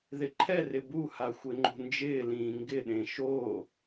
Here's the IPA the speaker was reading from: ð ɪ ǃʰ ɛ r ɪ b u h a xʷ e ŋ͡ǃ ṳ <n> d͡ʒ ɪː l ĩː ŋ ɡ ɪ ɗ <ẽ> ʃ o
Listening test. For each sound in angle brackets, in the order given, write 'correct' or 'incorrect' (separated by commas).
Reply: correct, correct